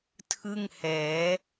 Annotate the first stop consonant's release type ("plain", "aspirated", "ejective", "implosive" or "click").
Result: aspirated